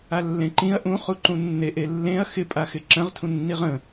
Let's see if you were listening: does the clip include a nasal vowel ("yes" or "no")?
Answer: yes